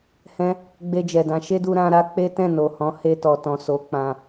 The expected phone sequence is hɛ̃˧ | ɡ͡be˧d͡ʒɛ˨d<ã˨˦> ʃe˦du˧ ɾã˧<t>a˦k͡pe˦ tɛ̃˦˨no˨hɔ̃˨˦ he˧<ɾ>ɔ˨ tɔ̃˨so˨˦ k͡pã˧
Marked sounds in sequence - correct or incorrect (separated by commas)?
correct, incorrect, incorrect